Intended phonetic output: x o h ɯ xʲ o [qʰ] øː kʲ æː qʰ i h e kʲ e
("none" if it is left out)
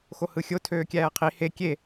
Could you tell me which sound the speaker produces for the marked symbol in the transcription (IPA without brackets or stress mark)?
tʰ